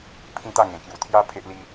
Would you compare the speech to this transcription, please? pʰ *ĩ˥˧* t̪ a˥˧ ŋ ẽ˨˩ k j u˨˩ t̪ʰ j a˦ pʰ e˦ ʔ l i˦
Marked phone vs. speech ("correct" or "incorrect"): correct